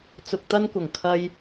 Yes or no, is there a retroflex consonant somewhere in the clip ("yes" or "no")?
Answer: no